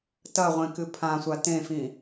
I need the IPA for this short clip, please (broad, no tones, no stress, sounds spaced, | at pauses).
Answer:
t ɐ ʁʷ ẽ k ɨ pʰ ã sʷ a t ẽ f ĩ